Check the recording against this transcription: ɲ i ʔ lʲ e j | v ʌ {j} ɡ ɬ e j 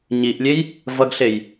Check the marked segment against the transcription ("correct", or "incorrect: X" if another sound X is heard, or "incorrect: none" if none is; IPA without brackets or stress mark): incorrect: none